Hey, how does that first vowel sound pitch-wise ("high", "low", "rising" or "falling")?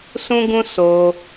high